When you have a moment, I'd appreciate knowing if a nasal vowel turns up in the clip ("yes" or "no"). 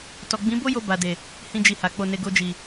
yes